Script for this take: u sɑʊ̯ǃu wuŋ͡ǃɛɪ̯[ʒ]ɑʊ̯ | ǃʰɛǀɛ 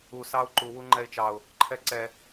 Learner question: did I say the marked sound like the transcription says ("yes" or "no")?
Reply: no